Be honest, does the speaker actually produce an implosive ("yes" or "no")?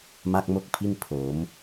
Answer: no